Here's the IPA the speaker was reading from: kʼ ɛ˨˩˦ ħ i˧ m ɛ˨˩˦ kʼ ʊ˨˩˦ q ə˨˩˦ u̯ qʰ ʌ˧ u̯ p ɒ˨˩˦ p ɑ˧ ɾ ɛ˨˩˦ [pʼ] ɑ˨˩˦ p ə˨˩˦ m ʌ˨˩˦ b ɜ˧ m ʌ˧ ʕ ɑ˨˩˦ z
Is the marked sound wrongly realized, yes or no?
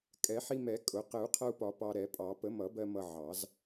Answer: no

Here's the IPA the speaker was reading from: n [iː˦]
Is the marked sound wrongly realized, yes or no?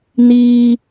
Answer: no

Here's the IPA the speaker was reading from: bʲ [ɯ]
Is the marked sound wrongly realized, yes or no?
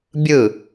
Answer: no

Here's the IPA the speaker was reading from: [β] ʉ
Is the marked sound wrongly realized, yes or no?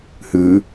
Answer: yes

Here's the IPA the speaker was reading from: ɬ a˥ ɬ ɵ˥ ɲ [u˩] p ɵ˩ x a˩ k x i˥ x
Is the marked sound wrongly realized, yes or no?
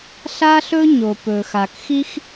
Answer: yes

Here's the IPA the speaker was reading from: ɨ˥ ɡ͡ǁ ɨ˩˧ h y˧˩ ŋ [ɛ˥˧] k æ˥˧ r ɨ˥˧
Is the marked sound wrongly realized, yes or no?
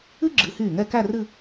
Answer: no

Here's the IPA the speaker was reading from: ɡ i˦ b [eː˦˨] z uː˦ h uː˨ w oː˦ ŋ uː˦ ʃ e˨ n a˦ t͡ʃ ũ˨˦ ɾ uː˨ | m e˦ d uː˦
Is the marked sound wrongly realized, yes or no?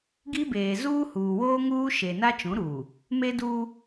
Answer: yes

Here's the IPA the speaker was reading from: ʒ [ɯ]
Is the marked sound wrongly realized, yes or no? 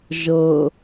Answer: yes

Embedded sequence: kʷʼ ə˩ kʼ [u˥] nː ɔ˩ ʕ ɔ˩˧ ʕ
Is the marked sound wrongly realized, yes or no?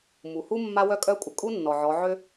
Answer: no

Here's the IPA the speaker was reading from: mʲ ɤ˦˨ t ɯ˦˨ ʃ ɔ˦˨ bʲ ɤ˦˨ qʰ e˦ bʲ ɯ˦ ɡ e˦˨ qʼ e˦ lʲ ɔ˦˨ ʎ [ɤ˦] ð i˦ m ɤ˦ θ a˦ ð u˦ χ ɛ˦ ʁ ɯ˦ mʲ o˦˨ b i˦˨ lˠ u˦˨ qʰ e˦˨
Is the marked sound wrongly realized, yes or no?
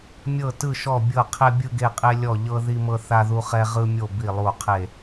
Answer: no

